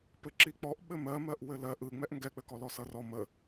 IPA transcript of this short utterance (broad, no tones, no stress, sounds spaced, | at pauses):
p ɘ ǁ i k͡p ɔ ʔ ɓ ɘ m ɜ m ɜ ʔ w ɘ l ɜ ʔ ɯ ŋ͡m ɛ ʔ ŋ ɡ ɛ k͡p ɘ k ɔ l ɔ s ʌ r ɔ m ə